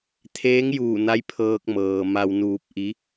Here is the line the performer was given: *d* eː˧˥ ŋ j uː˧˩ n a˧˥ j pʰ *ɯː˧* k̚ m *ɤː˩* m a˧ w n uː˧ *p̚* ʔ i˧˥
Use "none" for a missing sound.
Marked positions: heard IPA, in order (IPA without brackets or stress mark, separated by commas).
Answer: t̪ʰ, ɤː˧, ɤː˩, p̚